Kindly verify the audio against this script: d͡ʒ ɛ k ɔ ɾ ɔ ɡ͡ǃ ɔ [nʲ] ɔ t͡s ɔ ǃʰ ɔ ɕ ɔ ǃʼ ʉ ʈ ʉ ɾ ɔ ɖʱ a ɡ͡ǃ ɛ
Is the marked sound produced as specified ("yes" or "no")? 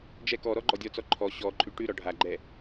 no